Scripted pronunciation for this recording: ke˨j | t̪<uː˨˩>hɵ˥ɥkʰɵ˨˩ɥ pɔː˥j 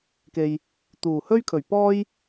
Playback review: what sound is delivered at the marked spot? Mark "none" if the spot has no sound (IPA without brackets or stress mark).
uː˨˩